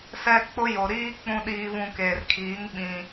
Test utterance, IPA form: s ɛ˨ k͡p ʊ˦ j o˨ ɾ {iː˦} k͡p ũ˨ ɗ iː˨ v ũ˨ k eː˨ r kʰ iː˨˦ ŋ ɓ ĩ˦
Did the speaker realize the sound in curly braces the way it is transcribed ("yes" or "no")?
yes